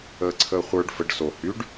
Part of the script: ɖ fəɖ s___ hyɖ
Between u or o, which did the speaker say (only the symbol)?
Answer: o